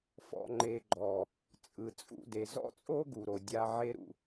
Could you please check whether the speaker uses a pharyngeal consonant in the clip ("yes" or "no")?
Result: yes